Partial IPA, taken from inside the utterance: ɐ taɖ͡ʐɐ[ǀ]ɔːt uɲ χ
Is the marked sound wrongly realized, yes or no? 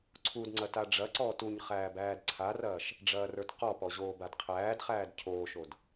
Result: no